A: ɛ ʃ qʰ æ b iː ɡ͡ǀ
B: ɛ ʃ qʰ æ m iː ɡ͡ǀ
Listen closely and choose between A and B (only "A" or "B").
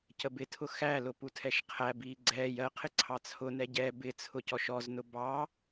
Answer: A